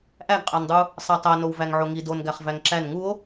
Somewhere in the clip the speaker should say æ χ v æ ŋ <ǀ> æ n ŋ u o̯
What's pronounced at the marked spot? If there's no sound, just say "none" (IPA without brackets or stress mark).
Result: ǁ